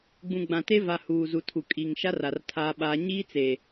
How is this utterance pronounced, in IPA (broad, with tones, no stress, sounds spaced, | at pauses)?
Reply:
ɡ͡b ũ˨ ɡ͡b ã˨ t e˦ v a˨ h uː˨ z u˨ tʰ u˨ kʼ i˨ ŋ ʃ a˦ r a˨ r tʰ aː˦ ɓ aː˦ ɲ iː˦ t͡s e˨